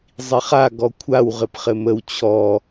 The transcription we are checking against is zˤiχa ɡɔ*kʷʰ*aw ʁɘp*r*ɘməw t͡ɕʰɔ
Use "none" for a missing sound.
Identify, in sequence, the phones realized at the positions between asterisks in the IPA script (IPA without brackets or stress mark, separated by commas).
kʷʰ, χ